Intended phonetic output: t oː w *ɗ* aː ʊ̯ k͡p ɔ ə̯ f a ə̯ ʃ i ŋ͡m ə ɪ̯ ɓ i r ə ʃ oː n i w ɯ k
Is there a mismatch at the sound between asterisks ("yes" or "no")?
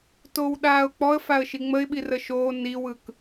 no